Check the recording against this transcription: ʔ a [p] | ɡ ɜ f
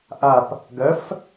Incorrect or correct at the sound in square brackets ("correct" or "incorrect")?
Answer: correct